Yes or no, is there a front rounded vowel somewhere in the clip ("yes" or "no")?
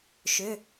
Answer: yes